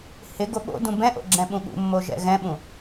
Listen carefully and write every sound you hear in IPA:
h ɪ ɡ o ɓ o̰ d ũ b ɛ̃ ʔ o̰ ɡ͡ǁ ɛ̃ ɓ ũ ɠ ṵ mː o ʒ ɛ̰ ɣ ɛ̃ ɓ ũ

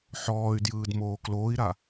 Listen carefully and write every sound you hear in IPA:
ħ ɔː y̯ d j ɯː d m oː k l oː i̯ ɾ a

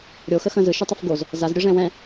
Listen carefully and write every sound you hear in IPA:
ɾʲ o x ə x ə̃ z ɯ ʃ u tˤ ə f ɡ o z | z a z ɾʲ ɯ ʐ ɛ̃ w ɛ̃

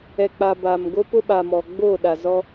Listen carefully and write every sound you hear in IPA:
ɛ˨ k͡p a˨ b a˨ m ɡ o˦ p ʊ˦ ɓ a˨ m ɔ˨ ɡ͡b o˦˨ ɗ a˨ z ɔ˦

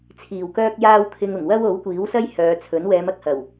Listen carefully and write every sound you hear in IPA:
t͡sʰ iː˨˩ w k œː˥ k̚ j aː˥ w t̪ʰ ɪ˧ ŋ ʊ˨˩ ŋ w ɐ˥ w o˨˥ w kʷ iː˨˥ w s ɐ˥ j h œː˨˧ t͡sʰ ɵ˨˥ n w ɛː˨˧ m ɐ˨ k̚ h ɐ˨˩ w

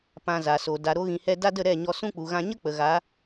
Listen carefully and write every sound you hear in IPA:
p ã˨ z a˨ s o˨ d a˨ ɾ o˧ ɣ ĩ˧ h ɛ˦ d a˦ d ə˦˨ ɾ ɛ˦˨ ɲ ɔ˧ s ũ˦ k͡p u˨ ɣ ã˧ ɲ ə˦ k͡p ə˨ ɣ a˨˦

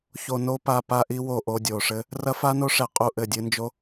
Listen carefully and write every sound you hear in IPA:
ç o˧ n o˦ p a˧ p a˦ ʔ i˦ w o˦˨ ʔ o˧ dʲ o˨ ʂ ɘ˦ | r ɐ˦ f a˦ n o˦ ʂ ɛ˧ qʼ u˦˨ ʔ ɘ˦˨ dʲ ɨ˧ n d͡ʒ o˦

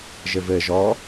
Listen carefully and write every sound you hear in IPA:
ʒ ɘ v ɘ ʒ ɔ

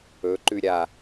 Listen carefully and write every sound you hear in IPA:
ɵ ǃ ʉ ɾʲ a

